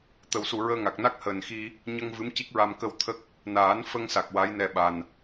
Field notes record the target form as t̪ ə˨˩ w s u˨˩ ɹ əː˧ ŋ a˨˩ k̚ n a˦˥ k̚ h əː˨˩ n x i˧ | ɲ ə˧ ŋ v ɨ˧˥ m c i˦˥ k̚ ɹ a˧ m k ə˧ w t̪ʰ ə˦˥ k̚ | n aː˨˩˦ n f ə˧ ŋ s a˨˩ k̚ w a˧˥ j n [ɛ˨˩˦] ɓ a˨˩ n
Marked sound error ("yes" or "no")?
yes